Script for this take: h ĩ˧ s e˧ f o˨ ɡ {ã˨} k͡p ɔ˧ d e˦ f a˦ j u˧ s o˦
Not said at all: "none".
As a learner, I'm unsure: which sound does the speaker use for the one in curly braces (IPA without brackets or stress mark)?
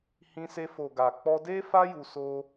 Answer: a˨